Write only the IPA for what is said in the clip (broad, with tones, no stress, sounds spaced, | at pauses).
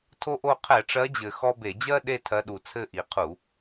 tʰ o˦ ʔ o˦˨ qʰ ɛ˧˩˧ ʈ͡ʂ ɜ˨˦ d͡ʑ ɘ˨˩ x ɔ˦ b e˧˩˧ d͡ʑ ɜ˦ ɗ e˦˨ tʰ ɜ˨˦ ɗ u˨˩ t͡sʰ ɘ˦˨ ʔ i˨˩ qʰ u˧˩˧